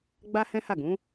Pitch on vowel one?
high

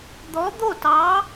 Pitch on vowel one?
rising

